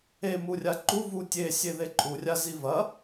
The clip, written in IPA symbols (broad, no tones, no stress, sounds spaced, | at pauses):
e m u rʲ a ǃ u v u tʲ e sʲ e ð e ǃʼ u rʲ a z i v ɐ